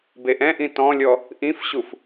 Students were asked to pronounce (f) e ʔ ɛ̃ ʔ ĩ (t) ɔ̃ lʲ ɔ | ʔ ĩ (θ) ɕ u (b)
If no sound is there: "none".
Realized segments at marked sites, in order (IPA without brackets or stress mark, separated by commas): b, t, f, f